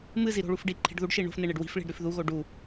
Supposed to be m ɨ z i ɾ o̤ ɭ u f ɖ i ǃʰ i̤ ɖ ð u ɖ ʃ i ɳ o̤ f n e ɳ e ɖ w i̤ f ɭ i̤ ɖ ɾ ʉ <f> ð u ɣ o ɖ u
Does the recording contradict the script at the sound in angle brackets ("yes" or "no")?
no